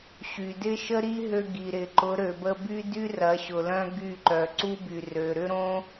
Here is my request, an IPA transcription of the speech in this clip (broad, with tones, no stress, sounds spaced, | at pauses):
ɕ y˨ d ɪ˦ ʃ ə˦ ɾ i˦ ɦ ø˧ ɡ i˨ ɾ ɪ˨ ǃ ʊ˨˦ ɾ ø˨ b ə˧ b y˦ d y˦ r ɐ˨˦ ɕ ʊ˨ l œ̃˦ ɡ y˦˨ ǃ œ˨ ǀ u˦ b y˨ r ø˨ ɾ ʏ˦ ɾ õ˦